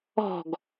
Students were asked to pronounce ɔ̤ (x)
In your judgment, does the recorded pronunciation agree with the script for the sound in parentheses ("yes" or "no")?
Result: no